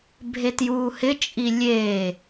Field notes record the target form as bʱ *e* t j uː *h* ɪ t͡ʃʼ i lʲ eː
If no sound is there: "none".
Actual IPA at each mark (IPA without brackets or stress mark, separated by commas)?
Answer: e, h